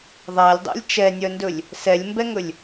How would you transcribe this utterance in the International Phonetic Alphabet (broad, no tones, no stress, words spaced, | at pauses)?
ðˤælʲdˤæ̰lʲ t͡ʃɛnʲœndɵlʲ | sɛlʲmbɛŋɵlʲ